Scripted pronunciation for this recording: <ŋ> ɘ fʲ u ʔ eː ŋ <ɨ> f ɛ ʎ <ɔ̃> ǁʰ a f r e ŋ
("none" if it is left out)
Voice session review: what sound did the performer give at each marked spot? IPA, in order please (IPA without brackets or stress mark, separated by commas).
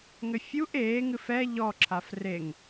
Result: ŋ, ɨ, ɔ